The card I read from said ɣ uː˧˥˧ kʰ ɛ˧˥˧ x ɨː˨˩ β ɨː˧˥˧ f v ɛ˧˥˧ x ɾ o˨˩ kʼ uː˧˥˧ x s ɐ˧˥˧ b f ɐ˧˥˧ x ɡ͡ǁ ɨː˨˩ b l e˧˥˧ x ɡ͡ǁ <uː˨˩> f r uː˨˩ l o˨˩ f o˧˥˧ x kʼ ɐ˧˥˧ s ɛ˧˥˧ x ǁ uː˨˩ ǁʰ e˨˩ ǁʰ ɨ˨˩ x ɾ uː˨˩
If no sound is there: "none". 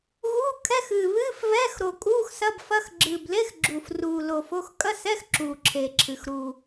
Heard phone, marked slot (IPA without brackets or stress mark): uː˨˩